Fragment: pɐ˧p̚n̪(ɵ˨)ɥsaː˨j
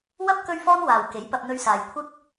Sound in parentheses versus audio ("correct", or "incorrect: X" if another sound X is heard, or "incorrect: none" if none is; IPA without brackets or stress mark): incorrect: ɵ˧